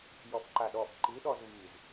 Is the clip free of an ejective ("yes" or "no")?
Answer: yes